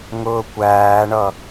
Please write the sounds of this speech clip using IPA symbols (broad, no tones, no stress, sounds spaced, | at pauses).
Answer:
ŋ ʊː kʷ æː ɳ ʌ